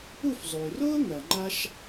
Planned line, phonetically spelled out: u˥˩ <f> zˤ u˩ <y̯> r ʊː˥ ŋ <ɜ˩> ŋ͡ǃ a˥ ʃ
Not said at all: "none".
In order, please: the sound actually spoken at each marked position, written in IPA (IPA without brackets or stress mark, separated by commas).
f, y̯, ɜ˩